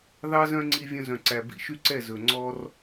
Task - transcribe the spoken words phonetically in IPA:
ð ɑ˦ z œ̃˦ ŋ͡ǀ i˦ vʲ œ̃˦ z œ̃˨ ǀ æ˨ b ḭ˧ ʃ y˦ ǀ ɛ˦˨ z ɵ˨ ŋ͡ǀ ɔ˦ r

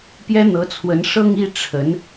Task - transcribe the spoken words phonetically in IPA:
p j ɛ˥ n̪ ɤ˧˥ t͡sʰ w ə˧˥ n ʂ ɤ˥˧ ŋ i˥˩ ʈ͡ʂʰ ə˧˥ n

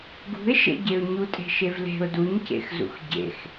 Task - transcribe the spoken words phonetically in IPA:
ɡ ṳ ɪ̯ ʃ ḛ ɟ e ʊ̯ ɲ u tʼ e̤ ʃ e v l e̤ ʊ̯ d u ɲ c ḛ x z ṵ x ɟ ḛ x

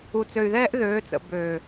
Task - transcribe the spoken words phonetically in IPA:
u˨ t͡s ø˨ y̯ ð ɛː˦ ʔ ð øː˨˦ t͡s ə̰˨ b øː˨

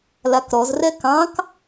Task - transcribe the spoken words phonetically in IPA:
l a k ɾ ɔ z r ɛ k ɑ̃ k

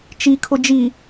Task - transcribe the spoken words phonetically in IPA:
t͡ʃ i kʰ ʊ d͡ʒ i

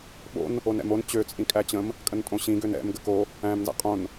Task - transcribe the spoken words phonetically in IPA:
ɓ o̰ n | o n ɛ̰ m o n t͡ɕ ø t͡sʼ ĩ kʼ æ t͡ɕ ə̃ m | kʼ ə n tʼ õ ɕ ĩ ɡ ø n ɛ̰ m ɡ ə k o | æ̃ m n z æ̰ qʼ õ n

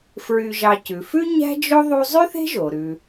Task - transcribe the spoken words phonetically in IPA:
f ɹ y˨ ʒ ɑ˨ c ʉ˩ f ʉ˥ ɲ æ̤˥ d͡ʒ o˥ ðˤ u˦ zˤ y˥ θ e̤˥ ʒ o˩ ɾ ʉ˩

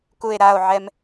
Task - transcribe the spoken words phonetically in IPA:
k u e̯ ɾ a o̯ ʕ ɛ m

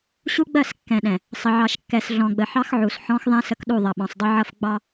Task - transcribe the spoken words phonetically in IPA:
ɕ u˦ ɡ͡b ɜ˦˨ s kː ɛ̃˨ ɗ ɛ̃˨ | sˤ ə˨ ʕ ɑ˨ ʃ kː ɛ˨ s ɮ ɔ̃˨ ɡ͡b ə˨ ħ ɑ˦ x ʕ u˨ s ħ ɔ̃˦ x ðˤ ɛ̃˦ s ə˦ k ɗ u˦˨ ðˤ ʌ˨ ɓ ɔ̃˨ sˤ dˤ ʊ˦ ʕ ʌ˦ f ɡ͡b ɑ˦

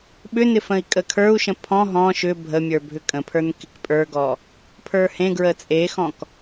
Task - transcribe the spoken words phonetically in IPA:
ɓ ʏ n ɪ f ə̃ i̯ kʼ ə kʰ ə˞ u̯ ʃ ə̃ pʰ ɔ̃ ɦ ɔ̃ ʃ ʏ bʱ ə mʲ ə˞ bʱ ʏ kʼ ə̃ pʰ ə˞ n k ɪ k pʼ ə˞ ɡ ɔ | pʰ ə˞ h ẽ ɡ ɹ ə t͡sʼ e x ɔ̃ k

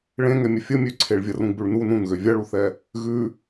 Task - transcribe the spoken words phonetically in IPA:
ɭ ẽ ŋ ɛ mʲ ə fʲ ə mʲ ø ǀʰ e ɭ vʲ ɐ r ũ ɡ͡b ʉ ɭ n u n ũ n ɣ ø vʲ ɐ ɭ u θ ɛ | ɣ ʉ

